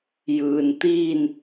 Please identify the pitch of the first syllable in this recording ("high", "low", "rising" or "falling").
low